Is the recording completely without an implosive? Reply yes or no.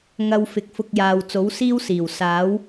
yes